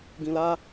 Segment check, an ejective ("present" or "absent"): absent